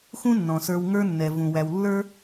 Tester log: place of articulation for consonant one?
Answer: velar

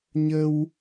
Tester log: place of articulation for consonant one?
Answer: palatal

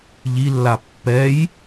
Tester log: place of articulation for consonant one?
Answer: palatal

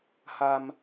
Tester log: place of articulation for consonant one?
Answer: glottal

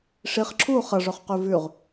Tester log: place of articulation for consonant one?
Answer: retroflex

